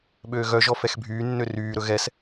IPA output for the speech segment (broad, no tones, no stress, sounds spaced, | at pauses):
ɓ øː ɣ œ ʒ ɔ f ɛ x bʱ yː nː ø r yː ɾ ɵ ɣ ɛ s